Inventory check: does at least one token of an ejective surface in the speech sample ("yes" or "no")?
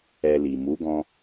no